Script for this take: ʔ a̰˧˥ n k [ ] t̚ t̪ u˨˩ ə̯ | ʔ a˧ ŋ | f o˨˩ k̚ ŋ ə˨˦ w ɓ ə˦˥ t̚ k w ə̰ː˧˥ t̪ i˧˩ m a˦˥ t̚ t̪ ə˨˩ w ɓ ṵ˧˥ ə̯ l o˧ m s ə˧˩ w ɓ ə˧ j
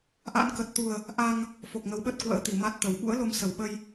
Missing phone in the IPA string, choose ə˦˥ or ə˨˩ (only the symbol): ə˨˩